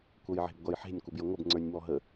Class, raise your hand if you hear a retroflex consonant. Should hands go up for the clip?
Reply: no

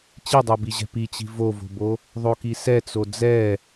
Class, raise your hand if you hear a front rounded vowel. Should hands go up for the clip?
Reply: no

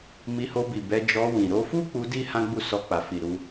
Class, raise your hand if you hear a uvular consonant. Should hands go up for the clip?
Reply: no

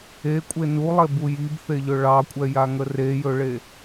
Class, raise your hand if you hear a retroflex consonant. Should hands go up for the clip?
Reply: yes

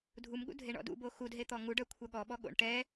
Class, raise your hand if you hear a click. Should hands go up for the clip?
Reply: no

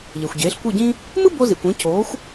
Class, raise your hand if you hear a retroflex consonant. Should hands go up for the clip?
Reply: no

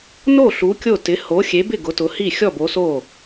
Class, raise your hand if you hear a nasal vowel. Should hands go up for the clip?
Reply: no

